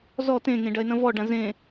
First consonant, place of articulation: alveolar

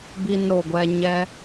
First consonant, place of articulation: labial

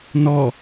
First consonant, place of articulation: alveolar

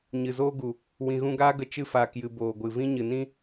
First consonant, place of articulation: palatal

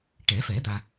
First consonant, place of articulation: retroflex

